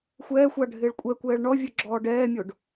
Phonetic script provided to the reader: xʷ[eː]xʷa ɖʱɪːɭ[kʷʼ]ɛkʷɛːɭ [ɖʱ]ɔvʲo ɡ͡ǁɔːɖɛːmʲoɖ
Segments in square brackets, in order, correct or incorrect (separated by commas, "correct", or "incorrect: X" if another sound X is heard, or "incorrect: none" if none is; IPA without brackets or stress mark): incorrect: ɛː, correct, incorrect: ɳ